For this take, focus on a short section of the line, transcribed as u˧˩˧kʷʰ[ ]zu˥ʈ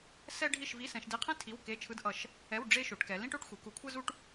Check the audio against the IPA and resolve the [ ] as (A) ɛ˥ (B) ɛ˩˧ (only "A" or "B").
A